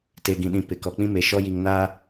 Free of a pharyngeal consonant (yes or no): yes